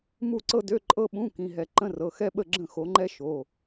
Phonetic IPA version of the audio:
mu˥˨ǀɤ˥dø˧˥˧ ǃʼɤ˥ɓũ˧˥˧kĩ˩˧˩ɦɛ˧˩˧ ǃə̃˧˥˧rɤ˩˧˩xɛ˥ɓə˥˨ ɡ͡ǁə̃˥˨xo˨˦ŋ͡ǃɛ˥ ʃo˩˧˩

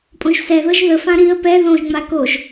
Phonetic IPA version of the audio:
pʼõʒsɛðɤʒ ðəfã ɾiə̯ pɛ ðõʒŋ͡ma koʒ

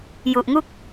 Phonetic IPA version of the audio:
ju˨˩ʔŋu˥˩k̚

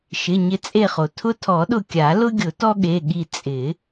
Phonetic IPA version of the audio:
ʃɪ˩˧˩ ɲɪ˧˩t͡sʼe˧˩χo˩ tʰʊ˦tʰɔ˨˩˦ɗʊ˧˩ kʲa˨˩˦lʊ˦ɡʲʊ˨˩˦ tɔ˦ɠe˩˧˩ɠi˧˩ t͡sʼɪ˨˩˦

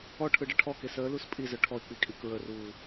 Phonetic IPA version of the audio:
ɔʈʰɯɖə ʈʰɔke səːlus pʼizœ ʈʰɔɪ̯k͡pikʼi kɹəruː

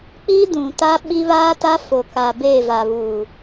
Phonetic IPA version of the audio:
k͡pi˦ dũ˨ta˦ ɓi˦ βaː˦ta˦fo˨ka˨ beː˦˨va˨βuː˨

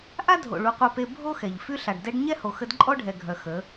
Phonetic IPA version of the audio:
ʔa˦dʱo̰˨ ɭu˨˦qʷœ˧pe˧ bʱo˦xɛ˨ʎ fy˧ɬa˨ɖdɛ˧ɖ ɲɛ˦ho˨xə˧d ǃʼɔ˦ɖʱɛ˨ɡʱœ˨ xə˨˦

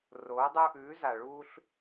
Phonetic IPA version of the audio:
roː˨˦dˤu˧ʔʉː˨˦ za˨ɭu˧ɬ

